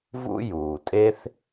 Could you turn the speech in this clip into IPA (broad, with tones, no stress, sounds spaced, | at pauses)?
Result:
v ṵ˥ j uː˩ tʼ e˥ θ